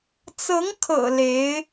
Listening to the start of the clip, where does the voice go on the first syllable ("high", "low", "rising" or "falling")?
rising